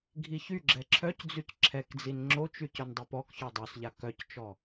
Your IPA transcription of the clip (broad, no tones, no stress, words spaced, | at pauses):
ɡʱiçy ɡ͡ǁɛǁʰœcd͡zyc ǁʰɛkd͡zin ŋ͡ǁot͡ʃy cœndˤœpɔk çɔdˤosʎa kœct͡ʃɔ